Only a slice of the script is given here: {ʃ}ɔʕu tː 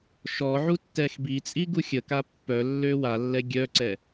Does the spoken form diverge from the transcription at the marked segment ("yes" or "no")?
no